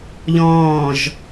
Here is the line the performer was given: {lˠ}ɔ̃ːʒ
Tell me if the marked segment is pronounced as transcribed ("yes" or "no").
no